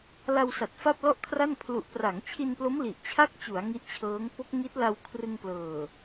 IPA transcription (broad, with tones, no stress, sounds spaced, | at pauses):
l a˧ w s a˨˩ t̚ f a˥˩ p̚ l ɔ˥˩ ʔ kʰ r a˥˩ n pʰ l u˨˩ ʔ p r a˩˦ ŋ t͡ɕʰ i˧ n p l o˦˥ m l i˨˩ ʔ t͡ɕʰ a˥˩ k̚ t͡ɕ u˩˦ a̯ ŋ i˦˥ ʔ t͡ɕʰ ɤː˦˥ ŋ p o˦˥ k̚ ŋ i˦˥ t̚ l a˧ w kʰ r ɯ˧ ŋ p l ɤː˨˩